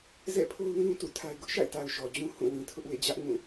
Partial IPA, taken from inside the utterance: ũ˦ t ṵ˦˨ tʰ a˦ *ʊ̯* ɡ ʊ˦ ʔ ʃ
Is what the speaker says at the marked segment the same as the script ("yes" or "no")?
no